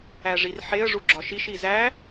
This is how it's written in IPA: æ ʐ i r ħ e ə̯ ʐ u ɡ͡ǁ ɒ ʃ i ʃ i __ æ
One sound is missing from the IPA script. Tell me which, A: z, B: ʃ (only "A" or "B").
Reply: A